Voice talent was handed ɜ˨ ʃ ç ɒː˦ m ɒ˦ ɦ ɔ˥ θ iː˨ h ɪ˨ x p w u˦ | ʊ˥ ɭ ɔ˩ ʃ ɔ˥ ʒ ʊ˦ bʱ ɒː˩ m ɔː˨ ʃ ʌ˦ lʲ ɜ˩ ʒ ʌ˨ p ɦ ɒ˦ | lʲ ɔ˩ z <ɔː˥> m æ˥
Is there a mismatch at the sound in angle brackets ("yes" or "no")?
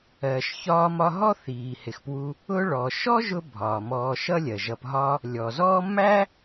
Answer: yes